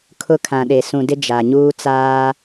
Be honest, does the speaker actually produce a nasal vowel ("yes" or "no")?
yes